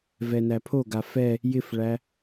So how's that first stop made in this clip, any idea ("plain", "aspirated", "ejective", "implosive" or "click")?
aspirated